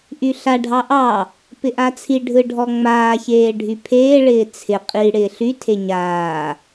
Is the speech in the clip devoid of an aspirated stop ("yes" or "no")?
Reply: no